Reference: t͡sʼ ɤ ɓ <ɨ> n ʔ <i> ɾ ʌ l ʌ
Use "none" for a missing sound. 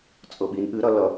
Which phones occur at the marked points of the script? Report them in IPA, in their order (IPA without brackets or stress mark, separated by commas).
i, ɨ